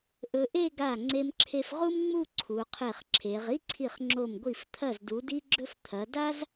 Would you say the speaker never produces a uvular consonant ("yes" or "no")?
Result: no